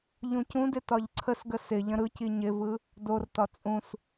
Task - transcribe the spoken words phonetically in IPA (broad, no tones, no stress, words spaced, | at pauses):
ʎũcũdɪ tɒʎǀʰəsɡə sɪʎə̃ ɾɯci ɲɪvɯ | dortɒ t͡sʼũs